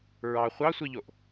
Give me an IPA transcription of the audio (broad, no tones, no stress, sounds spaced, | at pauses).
ɹ ɑ χʷ ɑ sʷ i ʎ o ʔ